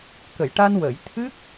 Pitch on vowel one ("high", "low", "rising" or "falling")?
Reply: low